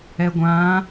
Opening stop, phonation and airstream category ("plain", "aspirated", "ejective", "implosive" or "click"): plain